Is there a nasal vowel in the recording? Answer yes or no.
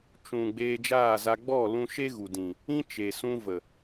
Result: yes